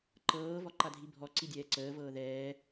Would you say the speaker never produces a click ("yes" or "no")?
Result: no